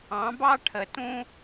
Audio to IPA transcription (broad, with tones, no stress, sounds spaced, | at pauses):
ɑ̃˩˥ b ɑ˥ ʈʰ ə˩ t ũ˧